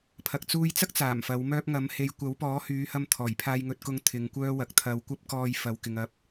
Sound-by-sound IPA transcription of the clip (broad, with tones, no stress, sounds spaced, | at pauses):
pʰ ɐ˨ k̚ t͡s uː˧ j t͡s ɐ˥ k̚ t͡s aː˨˩ m f ɐ˨˥ w m œː˥ p̚ ŋ ɐ˨˥ m h e˧ j kʷ ɐ˨˥ w p ɔː˨˥ h yː˨˧ h ɐ˧ m t̪ʰ ɔː˨˩ j pʰ aː˧ j ŋ ɵ˧ t̚ k ʊ˧ ŋ t̪ʰ ɪ˨ ŋ kʷ œː˥ w ɐ˨ k̚ t̪ʰ ɐ˧ w kʷ ɐ˥ p̚ k ɔː˧ j f ɐ˨ w k ɪ˨ ŋ ɐ˨˥ p̚